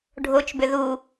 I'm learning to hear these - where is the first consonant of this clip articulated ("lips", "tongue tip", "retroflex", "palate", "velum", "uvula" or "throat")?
retroflex